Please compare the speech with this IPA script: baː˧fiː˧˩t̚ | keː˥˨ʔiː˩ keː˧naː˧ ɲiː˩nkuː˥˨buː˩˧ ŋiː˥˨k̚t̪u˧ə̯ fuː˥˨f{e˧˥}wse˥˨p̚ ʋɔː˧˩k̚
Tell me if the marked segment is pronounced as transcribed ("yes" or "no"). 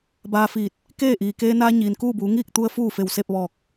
no